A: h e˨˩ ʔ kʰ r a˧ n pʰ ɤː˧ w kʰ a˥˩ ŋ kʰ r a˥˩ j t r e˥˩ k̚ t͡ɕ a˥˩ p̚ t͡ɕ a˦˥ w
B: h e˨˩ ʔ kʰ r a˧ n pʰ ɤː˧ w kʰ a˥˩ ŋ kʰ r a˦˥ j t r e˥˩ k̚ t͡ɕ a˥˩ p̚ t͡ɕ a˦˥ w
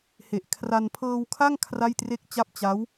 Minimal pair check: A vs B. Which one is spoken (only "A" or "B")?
A